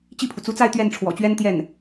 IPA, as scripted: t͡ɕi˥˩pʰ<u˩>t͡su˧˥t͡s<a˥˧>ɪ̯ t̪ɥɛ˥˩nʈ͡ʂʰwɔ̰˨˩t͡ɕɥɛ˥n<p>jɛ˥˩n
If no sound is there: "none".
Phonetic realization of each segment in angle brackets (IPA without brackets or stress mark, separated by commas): u˩, a˥˧, t̪